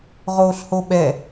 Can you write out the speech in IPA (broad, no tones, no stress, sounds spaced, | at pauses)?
ʁ oː ɬ h o ɓ ɛ